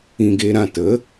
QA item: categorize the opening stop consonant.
plain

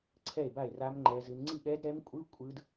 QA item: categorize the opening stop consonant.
click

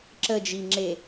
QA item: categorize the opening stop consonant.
click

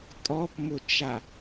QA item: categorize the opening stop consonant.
ejective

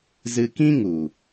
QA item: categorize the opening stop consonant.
plain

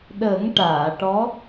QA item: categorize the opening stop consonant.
implosive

